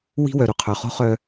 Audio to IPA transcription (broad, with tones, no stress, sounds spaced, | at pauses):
w i̤˦ w œ˨ ɾ u˨ qʰ œ˨ χ o̤˦ χ œ˦